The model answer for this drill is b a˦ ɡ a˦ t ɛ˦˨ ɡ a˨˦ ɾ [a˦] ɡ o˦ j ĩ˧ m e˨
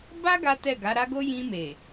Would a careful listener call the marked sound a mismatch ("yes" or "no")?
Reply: no